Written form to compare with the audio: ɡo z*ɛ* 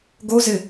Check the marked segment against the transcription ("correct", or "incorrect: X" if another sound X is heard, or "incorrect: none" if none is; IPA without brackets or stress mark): incorrect: ɪ